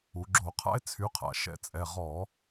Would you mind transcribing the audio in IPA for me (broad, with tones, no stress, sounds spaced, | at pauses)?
u˩˧ ɡ͡ǁ o˧˩˧ qʰ a̰˥ e̯ t͡sʰ y˩˥ qʰ a̰˩˧ ʃ ɛ̰˧˩˧ t͡sʼ ɛ˩˧˩ ʁ ɔ˧˩˧